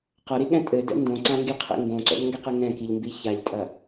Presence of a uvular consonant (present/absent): present